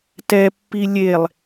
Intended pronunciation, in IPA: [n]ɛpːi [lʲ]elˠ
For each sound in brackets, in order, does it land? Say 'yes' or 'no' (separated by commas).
no, yes